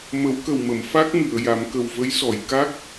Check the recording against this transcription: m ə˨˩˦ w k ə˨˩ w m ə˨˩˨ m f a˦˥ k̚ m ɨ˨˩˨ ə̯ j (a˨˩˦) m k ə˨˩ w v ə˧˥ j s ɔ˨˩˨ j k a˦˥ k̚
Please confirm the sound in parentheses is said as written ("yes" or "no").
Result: yes